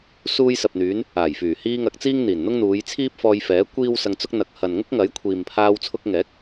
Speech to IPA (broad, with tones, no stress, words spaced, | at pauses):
suː˧jsɐ˨p̚n̪yː˨˧n | aː˨˩j fyː˨˩hiː˧ ŋɐ˧k̚t͡siː˥ŋ n̪iː˨˩nn̪ʊ˥ŋn̪uː˨˧jt͡sʰiː˥p̚ fɔː˧jfɛː˨˥ kʷiː˥wsɐ˧ŋt͡sʊ˥k̚ n̪ɐ˨k̚hɐ˨nŋʊ˥k̚ ŋɐ˨˥jkʷʰiː˨mpʰaː˧w t͡sʰʊ˧k̚ŋɛː˨˥k̚